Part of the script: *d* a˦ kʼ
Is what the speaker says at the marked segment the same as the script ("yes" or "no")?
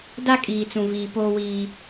yes